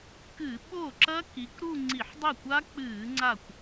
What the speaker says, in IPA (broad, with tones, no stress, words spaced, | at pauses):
kɨ˧˩˧ ɓo˥˩ǁɐ˦˥ ki˨˦kɾu˥˧ ŋ͡ǀi˧˩˧ħdˤɵ˥˩kʷa˦˥ k͡pɨː˧˩˧ŋ͡ǀa˧˩kʷ